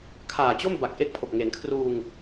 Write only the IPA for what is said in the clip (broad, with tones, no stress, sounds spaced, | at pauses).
kʰ aː˨˩ t͡ɕ o˥˩ m b a˨˩ k̚ ʔ e˦˥ k̚ pʰ o˨˩ k̚ ŋ e˩˦ n kʰ r uː˧ ŋ